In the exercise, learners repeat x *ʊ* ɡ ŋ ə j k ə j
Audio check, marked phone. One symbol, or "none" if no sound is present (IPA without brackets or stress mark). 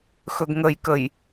ɵ